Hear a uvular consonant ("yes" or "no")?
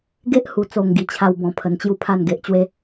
no